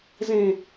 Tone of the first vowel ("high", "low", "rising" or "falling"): low